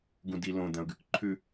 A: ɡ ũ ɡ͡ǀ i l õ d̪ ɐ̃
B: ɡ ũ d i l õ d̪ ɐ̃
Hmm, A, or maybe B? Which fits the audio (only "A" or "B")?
B